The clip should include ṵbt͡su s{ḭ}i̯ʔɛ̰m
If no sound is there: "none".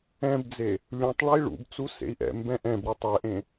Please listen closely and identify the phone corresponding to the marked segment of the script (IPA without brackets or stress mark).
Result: ḛ